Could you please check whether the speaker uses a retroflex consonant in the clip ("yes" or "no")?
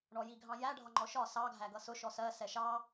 yes